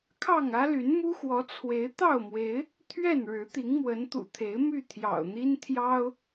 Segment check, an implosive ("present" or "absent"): absent